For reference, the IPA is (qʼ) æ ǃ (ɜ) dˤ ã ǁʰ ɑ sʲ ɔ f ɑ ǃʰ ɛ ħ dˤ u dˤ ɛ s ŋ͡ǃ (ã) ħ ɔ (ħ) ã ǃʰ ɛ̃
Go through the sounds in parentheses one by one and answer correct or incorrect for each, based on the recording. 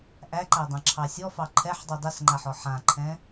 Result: incorrect: ʔ, incorrect: æ, incorrect: a, correct

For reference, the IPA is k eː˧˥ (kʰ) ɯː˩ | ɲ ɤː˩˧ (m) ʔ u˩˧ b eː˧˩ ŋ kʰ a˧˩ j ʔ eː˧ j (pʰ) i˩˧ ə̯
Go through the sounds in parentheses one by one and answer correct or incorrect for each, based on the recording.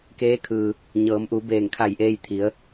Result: correct, correct, incorrect: t̪ʰ

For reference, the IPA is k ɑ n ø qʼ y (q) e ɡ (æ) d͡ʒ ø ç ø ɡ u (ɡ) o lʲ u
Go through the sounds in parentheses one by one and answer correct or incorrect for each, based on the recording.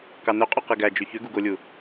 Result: correct, correct, correct

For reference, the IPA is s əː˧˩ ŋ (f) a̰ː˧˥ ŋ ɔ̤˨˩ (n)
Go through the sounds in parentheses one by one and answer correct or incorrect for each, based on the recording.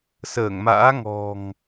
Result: incorrect: m, incorrect: ŋ

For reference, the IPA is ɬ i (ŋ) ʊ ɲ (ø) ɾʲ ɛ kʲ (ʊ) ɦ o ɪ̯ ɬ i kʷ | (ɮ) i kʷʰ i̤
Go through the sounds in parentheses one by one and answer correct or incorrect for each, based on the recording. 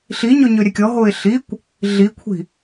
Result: incorrect: ɲ, correct, incorrect: ɔ, correct

